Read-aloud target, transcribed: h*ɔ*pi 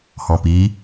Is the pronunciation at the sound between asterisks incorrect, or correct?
incorrect